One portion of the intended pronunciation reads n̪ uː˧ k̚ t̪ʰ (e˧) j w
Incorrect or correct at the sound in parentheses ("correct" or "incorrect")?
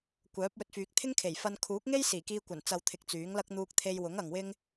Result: correct